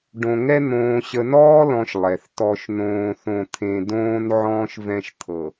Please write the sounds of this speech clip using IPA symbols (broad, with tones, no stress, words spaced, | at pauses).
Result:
ɖõ˨ŋɛ˦ n̪õː˨ ɕə˨nɔː˦lɔ̃˨ʃ lˠɛ˨θ tɔ˦ʃnõː˦θõ˦t̪ʰẽ˦ dõː˦n ʕɔ̃ː˦ʃvɛ̃˦ʃt̪ʰɤ˨